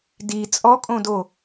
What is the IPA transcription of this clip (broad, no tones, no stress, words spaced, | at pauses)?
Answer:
di t͡sʼɔkʼõdo